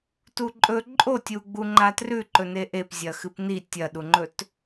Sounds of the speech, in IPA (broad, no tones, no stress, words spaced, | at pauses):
tuǃʼɵ ǃʼotʲu ɡ͡buŋ͡ǃatrʉ ǃɵneʔep zʲɐxɨpni tʲɐɗuŋ͡ǃɵt